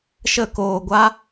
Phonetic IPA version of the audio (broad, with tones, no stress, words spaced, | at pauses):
ʃə˦˨koː˧ɡʷa˦